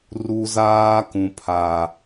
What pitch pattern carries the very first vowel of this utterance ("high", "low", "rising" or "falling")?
high